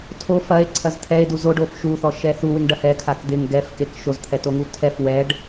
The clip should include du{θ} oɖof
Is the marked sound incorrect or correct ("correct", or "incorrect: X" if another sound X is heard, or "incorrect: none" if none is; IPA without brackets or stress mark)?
incorrect: z